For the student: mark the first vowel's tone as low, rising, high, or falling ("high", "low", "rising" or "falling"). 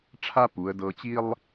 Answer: high